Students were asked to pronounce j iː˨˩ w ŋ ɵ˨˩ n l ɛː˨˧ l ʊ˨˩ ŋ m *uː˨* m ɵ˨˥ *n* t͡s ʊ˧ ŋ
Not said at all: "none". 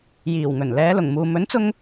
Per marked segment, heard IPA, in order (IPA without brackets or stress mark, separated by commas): uː˨, n